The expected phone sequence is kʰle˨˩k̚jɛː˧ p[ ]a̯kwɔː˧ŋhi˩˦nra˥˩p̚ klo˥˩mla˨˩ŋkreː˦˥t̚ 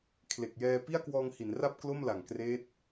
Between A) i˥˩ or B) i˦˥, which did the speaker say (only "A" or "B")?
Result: A